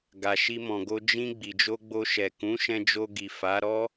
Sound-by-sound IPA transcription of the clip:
ɡ a˨ ʃ i˧ m ɔ̃˨ ɡ o˧ d͡ʒ ĩ˧ ɡ͡b i˨ d͡ʒ o˧ ɡ͡b o˧ ʃ ɛ˨ k ũ˨˦ ʃ ɛ̃˧ d͡ʒ o˧ ɡ i˨ f a˨˦ ɾ ɔ˦

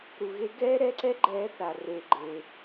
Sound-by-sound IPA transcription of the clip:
ɾ u˩ ɣ e˨˦ ɡ ɛː˦ ɾ ɛ˦ ǀ ɛ˦ ɡ͡ǃ ɛː˨˦ θ a˩ r eː˩ ɡ͡ǃ eː˩

